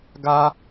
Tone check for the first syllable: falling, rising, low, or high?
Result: high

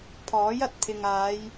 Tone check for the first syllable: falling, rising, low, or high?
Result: rising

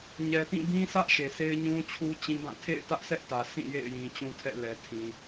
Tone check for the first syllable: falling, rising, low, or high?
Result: low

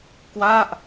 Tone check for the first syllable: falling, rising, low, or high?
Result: falling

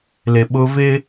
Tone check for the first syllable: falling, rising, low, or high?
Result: low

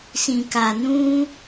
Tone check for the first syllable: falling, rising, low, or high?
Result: low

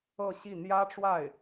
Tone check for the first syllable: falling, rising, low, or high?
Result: falling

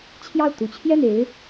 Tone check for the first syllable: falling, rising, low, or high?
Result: falling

